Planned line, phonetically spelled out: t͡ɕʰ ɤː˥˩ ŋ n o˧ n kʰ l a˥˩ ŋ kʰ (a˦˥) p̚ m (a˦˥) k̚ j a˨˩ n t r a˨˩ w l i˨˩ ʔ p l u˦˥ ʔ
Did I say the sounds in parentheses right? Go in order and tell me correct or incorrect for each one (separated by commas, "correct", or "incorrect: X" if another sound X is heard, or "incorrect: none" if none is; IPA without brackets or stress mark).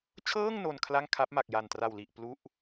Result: correct, incorrect: a˨˩